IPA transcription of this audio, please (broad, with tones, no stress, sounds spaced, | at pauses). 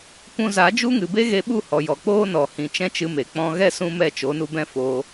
kʷ ũ˧ z a˨˦ d͡ʒ u˦ ŋ ɨ˨ b e˦ ɣ e˧ ɓ u˦˨ h ɔ˨ j ɔ˨ k͡p oː˦ n ɔ˨ h ĩ˨ t͡ʃ ɛ̃˦ t͡ʃ ɨ˧ m e˨ k͡p ɔ̃˧ ɣ ɛ˦ s ũ˦ m ɛ˦˨ t͡ʃ o˨˦ n u˧ b ɛ̃˦ f oː˧